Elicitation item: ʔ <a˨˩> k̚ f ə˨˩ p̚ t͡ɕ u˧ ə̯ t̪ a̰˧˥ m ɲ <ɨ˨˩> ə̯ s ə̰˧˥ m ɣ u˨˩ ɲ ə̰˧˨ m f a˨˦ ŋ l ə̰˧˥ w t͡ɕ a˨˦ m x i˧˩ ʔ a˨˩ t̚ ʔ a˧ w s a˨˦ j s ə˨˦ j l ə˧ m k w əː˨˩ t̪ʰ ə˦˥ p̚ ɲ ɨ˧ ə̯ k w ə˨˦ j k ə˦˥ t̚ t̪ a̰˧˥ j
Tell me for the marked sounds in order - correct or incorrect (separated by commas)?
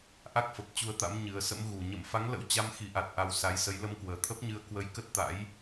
incorrect, correct